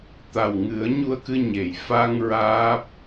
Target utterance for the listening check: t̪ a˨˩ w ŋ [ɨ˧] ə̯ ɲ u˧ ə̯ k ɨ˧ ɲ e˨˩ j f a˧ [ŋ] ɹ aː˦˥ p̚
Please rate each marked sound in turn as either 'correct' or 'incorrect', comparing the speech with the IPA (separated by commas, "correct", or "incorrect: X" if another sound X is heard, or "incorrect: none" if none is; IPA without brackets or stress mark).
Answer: incorrect: ɨ˨˩˦, correct